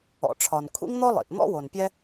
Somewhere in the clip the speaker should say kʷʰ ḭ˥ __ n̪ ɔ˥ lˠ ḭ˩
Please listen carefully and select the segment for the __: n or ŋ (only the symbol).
ŋ